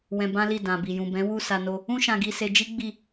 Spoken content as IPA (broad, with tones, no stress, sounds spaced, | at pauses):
w ɛ̃˧ b ã˦ l i˦˨ d ã˨ b i˨ j ũ˨ b ɛ̃˨˦ w u˦˨ s a˧ n o˧ | ũ˦ ʃ ã˧ ɡ i˧ s e˧ d͡ʒ i˦ ɡ͡b i˦˨